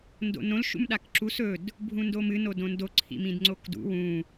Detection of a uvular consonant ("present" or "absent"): absent